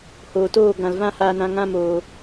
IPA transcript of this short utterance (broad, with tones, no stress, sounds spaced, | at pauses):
h oː˨ t oː˦˨ ɡ ã˨ l v ã˧ h aː˧ n ã˧ ŋ ã˦ m oː˧